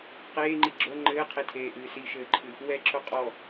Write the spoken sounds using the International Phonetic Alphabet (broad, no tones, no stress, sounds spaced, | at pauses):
q eː ŋ͡ǃ i ɡ͡ǁ o ŋ͡ǃ ɘː qʰ e tʰ eː ʔ ɨː s i ʃ ɘː ǃʰ ɨ | w ɛ ǁ o qʼ ɔ